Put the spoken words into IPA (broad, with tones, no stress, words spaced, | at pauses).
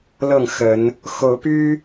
lɤ˥˨ŋxə˨˦n | xo˨˦ʊ̯py˦